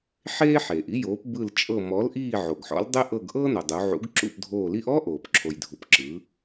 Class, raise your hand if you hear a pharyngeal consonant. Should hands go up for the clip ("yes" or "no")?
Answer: yes